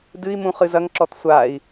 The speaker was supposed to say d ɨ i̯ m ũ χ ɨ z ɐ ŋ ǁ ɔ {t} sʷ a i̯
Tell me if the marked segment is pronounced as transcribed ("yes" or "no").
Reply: yes